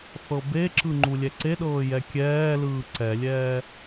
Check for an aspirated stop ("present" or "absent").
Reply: absent